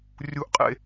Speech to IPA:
rʲ u˥ ʔ qʼ ḛ˥

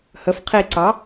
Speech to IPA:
h ə f qʰ i ǀ ɑ

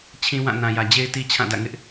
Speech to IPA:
t͡ɕʰ ĩ˦ w ã˦˨ n ã˨ j ä˨ d͡ʑ e˦ ɪ̯ t i˦ t͡ɕʰ ã˦˨ d ä̰˦˨ ŋ ɪ˦ ʔ

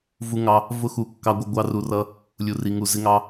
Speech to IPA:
v u˧ ŋ ɑ˧ | v ʊ˦ x u˨˦ kː ɑ˧ ɡʷ ʌ˧ ɡʷ ɑ˦ r u˧ r ʌ˦ | lʲ u˨ r i˨ ŋ u˨ z ɪ˧ ŋ ɑ˧

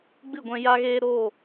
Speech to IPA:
ɡ͡b ɨ˦˨ ɡʷ ɛ̃˧ j a˧ ɣ eː˧ ɾ o˦˨

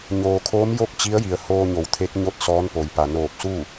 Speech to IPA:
ɲ oː˩ kʰ oː˧˥ m j o˥˨ k̚ t͡ɕ i˧˥ ə̯ j i˩ ə̯ h oː˧ ɲ o˩˧ w t̪ʰ e˧˥ k̚ ɲ o˥˨ t̚ s ɔː˧˥ n p o˩ j p a˩ n oː˧˩ p̚ s u˥˨

